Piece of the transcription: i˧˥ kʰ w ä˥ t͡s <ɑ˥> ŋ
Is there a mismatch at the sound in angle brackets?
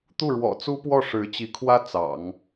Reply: yes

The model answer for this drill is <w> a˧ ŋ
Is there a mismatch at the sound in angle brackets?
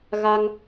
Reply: yes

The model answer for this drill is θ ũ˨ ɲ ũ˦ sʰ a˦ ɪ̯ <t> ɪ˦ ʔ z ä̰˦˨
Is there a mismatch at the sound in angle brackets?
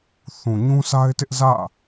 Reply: no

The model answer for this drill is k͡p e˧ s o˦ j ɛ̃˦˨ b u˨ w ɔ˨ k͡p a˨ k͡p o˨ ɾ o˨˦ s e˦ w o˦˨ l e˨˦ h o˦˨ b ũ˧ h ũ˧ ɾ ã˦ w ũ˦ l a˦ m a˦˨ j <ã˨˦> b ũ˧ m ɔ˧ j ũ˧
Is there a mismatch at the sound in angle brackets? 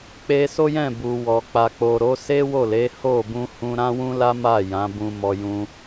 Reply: no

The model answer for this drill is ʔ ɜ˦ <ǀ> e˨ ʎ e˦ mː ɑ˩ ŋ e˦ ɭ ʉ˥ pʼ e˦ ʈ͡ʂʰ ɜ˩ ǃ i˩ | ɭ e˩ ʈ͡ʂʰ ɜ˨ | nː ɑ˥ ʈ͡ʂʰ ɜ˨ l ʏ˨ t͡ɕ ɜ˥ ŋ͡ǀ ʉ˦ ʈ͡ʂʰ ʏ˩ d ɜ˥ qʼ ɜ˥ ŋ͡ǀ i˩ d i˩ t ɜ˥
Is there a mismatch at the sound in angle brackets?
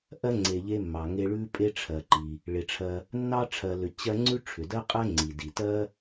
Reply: yes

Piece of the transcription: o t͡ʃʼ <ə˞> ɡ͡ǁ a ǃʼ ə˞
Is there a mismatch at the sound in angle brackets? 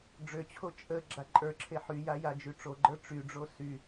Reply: yes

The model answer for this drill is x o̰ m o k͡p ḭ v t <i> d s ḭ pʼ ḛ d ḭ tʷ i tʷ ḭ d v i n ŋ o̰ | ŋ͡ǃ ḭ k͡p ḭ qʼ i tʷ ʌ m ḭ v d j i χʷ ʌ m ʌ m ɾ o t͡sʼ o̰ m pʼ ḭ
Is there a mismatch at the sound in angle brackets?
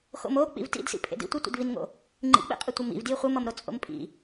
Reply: yes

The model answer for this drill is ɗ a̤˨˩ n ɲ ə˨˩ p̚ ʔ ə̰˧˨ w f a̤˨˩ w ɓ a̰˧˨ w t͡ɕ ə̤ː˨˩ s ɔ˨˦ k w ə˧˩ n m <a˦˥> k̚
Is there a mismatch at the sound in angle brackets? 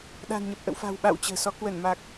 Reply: yes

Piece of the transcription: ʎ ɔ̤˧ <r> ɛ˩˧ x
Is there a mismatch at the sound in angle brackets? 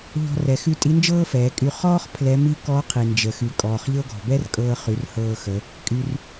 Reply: no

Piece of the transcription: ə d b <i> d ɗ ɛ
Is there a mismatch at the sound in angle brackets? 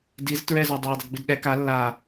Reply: no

